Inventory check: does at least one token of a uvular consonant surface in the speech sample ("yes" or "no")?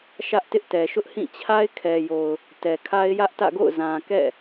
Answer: no